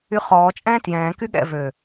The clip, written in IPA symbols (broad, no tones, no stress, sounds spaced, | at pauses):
y χ ɔː t͡ʃʼ ɛ̃ː t j ɛ̃ː k y ɠ ɛ̰ v ø